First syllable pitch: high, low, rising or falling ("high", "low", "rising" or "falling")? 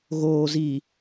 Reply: low